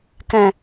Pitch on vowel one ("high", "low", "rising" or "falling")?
low